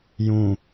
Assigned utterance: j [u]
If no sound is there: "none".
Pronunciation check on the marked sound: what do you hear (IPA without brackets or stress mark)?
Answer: ũ